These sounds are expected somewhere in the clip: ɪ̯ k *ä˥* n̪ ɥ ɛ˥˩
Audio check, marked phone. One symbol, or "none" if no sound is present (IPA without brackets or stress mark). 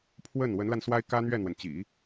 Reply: ä˥